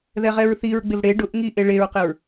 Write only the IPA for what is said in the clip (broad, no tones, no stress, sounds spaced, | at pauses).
ð ɛ ʁ ɛ ɹ θ i ɹ ɡ͡b ɪ v ɽ e ɖ ʊ ʔ ŋ i ʔ e ɭ e ɹ q ɪ ɹ